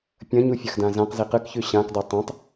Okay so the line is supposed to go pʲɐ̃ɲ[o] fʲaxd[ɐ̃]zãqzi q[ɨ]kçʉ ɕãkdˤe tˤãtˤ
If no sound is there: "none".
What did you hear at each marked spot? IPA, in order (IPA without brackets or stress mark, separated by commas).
u, ã, ɨ